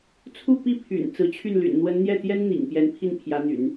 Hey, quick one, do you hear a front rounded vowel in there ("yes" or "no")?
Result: yes